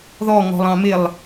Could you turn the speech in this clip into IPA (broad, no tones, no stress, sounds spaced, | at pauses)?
ð ɔ ŋ ɔ̤ lˠ ɑ̃ m ɪ lˠ